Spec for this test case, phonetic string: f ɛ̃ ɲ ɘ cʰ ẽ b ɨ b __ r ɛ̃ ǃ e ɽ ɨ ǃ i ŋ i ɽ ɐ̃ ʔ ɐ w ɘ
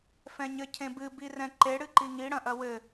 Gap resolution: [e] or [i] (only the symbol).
i